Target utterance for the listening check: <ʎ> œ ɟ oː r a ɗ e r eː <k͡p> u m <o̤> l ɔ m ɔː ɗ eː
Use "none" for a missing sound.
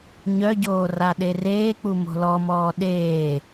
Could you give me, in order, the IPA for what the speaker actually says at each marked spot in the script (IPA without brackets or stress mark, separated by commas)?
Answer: ɲ, k͡p, o̤